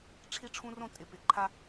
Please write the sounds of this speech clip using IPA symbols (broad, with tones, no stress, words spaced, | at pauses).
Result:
ʈ͡ʂʰi˦ʈ͡ʂʰũ˦rõ˦ tʼɪ˨ pɪ˨ǃʰa˦